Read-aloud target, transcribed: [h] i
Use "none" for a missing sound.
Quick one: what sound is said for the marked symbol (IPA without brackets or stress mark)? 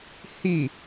h